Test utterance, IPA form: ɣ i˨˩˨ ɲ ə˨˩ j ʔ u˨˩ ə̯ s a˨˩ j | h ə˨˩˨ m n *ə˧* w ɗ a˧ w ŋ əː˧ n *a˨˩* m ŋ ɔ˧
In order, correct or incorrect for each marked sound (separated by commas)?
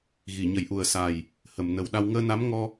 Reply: incorrect, incorrect